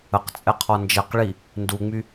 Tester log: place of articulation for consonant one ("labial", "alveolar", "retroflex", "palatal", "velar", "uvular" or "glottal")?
uvular